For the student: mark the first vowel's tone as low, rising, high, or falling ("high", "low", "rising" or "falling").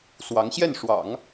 rising